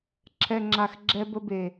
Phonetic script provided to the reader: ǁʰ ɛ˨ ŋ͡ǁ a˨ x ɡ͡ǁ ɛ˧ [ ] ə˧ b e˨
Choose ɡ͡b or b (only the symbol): b